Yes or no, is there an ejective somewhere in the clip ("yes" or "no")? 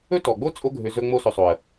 yes